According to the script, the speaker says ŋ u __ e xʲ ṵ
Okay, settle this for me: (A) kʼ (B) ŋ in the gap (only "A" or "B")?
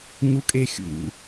A